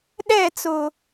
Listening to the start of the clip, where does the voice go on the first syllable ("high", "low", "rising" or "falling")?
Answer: falling